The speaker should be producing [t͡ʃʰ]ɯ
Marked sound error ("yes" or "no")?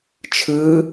no